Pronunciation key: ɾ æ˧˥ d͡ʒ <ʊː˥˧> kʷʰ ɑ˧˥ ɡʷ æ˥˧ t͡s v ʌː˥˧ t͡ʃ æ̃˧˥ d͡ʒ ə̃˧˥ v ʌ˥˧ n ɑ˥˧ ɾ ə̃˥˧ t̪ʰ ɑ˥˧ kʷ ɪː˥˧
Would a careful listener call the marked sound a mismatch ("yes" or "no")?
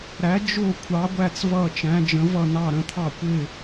no